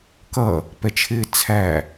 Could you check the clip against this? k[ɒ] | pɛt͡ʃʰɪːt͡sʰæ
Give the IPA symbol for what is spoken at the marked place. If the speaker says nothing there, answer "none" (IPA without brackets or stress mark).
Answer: ʌ